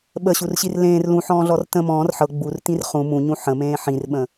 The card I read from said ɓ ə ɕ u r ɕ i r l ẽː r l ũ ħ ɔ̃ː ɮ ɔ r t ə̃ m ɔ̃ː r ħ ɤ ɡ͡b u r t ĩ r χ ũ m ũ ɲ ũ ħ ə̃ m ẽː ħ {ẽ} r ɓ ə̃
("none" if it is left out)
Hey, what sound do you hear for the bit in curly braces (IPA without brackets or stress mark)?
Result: ĩ